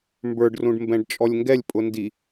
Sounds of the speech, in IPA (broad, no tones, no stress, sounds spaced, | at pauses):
m b ə˞ ɖ r ũ ɖ m b ɛ̃ ɖ t͡ʃʼ ɔ lʲ ŋ ɡ ɛ lʲ pʼ ʊ n d i